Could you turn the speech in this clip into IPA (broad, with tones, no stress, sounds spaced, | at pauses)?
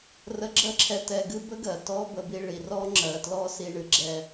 r ə˥ ɡ͡ǁ ɜ˥ ǁʰ ɛ˧ t ɛ˧ ɡ ɨ˥ b ə˥ ɡ ɜ˩ t ɔ˥ b ə˧ b i˧ ɭ i˩ r ɔ˥ ŋ͡ǁ ɜ˩ t l ɔ˥ s i˧ ɳ ɨ˧ ɡ͡ǁ ɛ˧